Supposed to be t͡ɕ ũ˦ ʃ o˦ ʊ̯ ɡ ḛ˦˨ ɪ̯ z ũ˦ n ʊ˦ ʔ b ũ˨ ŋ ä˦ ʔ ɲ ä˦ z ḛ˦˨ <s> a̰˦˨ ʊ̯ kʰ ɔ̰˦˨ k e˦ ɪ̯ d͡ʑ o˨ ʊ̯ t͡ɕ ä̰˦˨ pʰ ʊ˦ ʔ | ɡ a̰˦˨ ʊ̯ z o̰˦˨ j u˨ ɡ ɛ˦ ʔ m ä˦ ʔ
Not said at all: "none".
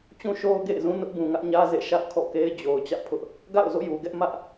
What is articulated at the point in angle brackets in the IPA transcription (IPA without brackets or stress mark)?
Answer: ʃ